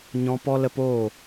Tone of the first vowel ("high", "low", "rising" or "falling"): high